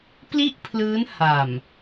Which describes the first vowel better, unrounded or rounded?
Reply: unrounded